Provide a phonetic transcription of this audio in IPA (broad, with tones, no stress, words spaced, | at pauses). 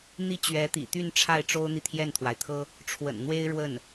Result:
n̪i˥˩t͡ɕɥɛ˧˥t̪ḭ˨˩t̪y˥˧n ʈ͡ʂʰa˥˩ɪ̯ʈ͡ʂo˥ʊ̯n̪i˨ t̪ʰjɛ˥˩nt̪ʰwa˩ɪ̯t̪ʰɤ˥ | ʈ͡ʂʰwə̰˨˩n n̪we˥ɪ̯ ɻwə˥˩n